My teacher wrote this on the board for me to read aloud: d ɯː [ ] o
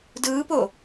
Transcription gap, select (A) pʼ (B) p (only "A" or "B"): B